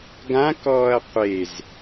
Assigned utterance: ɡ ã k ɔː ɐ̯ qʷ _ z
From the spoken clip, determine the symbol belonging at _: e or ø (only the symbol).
e